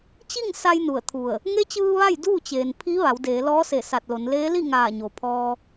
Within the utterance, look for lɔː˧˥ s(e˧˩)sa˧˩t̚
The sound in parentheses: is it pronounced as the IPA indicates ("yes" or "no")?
yes